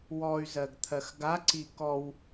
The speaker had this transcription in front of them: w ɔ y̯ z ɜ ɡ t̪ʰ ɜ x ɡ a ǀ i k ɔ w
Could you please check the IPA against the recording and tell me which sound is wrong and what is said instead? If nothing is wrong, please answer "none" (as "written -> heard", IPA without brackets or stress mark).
none